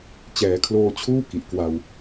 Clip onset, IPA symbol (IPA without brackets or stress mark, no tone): t͡ɕ